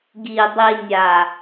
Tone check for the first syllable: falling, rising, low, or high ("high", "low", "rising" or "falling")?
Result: low